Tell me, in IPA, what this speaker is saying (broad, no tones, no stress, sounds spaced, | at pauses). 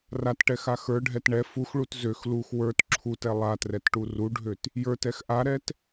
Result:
r a t ʈ ɛ x a x ə˞ ɖʱ ɛ t ɳ ɛ f u x ɭ u t z ø x l u x w ə˞ t ǁʰ u t ɛ lˠ a t r ɛ t ʈ u r u ɖʱ ø t | j ə˞ t ɛ x ʔ a ɾ ɛ t